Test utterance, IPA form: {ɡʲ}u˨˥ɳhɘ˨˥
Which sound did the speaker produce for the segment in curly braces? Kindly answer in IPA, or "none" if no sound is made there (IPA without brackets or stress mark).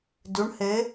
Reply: d